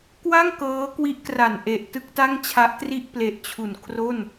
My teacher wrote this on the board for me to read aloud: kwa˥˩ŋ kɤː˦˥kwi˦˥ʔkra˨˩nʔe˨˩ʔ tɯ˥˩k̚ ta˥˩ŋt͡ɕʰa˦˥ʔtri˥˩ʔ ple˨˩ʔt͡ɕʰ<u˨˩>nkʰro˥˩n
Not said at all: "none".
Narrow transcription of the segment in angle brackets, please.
u˨˩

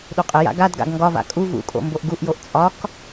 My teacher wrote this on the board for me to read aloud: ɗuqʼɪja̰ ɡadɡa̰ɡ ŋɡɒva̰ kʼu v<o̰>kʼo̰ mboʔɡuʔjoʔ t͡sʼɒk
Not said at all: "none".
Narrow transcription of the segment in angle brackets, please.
ṵ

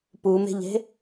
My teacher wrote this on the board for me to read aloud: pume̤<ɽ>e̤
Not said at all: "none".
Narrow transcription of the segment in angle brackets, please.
ʎ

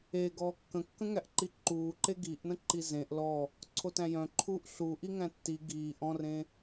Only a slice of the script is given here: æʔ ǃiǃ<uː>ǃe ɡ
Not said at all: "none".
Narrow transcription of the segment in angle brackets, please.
uː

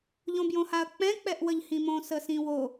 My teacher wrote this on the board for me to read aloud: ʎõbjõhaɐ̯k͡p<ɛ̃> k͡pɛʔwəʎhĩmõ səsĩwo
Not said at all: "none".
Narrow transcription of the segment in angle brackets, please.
ɛ̃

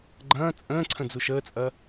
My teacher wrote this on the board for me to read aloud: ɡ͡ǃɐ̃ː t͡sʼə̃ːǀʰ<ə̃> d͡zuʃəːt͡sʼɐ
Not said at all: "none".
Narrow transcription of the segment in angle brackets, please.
ə̃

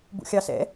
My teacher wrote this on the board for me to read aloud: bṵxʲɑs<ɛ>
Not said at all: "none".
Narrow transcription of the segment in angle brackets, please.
ɛ̰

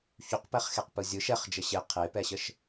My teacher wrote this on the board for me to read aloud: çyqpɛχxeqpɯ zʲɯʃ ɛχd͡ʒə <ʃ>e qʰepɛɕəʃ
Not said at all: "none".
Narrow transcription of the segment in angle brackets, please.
ɕ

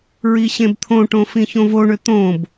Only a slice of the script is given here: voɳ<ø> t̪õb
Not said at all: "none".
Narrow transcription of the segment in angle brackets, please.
ø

